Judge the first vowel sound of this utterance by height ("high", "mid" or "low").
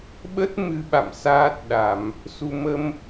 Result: mid